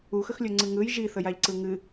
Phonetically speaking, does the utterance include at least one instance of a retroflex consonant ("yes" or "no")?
no